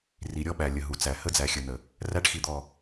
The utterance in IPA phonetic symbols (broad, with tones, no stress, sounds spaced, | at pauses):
r i˨ ɾʲ ɔ˦ ɓ æ˨ lʲ ə˨ ɦ u˨ t͡s æ˨ h ə˦ d͡z æ˨ xʲ ə˨ n ə˨ | r æ˦ ʈ x i˨ d̪ ɔ˨